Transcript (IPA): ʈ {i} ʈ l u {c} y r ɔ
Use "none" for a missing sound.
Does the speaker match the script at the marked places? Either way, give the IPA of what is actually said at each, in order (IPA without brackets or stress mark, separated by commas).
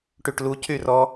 y, c